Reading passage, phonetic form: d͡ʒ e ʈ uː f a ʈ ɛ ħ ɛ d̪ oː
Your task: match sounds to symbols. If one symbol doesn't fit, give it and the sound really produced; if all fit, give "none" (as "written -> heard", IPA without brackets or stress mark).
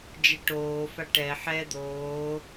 uː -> oː